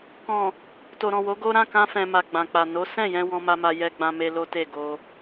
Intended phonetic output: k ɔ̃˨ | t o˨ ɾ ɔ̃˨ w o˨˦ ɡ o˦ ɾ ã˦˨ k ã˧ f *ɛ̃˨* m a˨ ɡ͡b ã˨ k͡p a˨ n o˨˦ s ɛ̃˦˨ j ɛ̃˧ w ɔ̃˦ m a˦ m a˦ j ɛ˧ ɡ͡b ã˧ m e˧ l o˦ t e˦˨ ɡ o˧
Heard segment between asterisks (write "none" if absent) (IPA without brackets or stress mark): ɛ̃˨